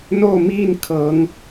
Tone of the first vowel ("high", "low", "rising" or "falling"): falling